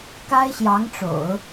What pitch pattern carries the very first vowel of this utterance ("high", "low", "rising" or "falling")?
high